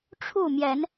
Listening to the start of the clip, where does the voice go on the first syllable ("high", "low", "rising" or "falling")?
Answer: falling